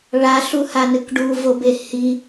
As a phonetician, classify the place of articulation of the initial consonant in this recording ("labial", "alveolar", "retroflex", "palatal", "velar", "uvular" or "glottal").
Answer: retroflex